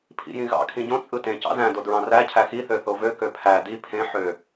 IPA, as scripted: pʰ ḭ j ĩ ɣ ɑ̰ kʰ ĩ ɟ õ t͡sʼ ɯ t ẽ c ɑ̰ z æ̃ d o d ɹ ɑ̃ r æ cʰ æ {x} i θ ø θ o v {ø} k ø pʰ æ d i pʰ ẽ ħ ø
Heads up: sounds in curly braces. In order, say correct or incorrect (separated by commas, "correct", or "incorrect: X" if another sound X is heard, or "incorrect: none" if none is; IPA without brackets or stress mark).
correct, correct